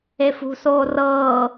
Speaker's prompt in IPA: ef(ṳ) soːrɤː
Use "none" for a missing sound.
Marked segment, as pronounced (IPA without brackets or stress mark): ṳ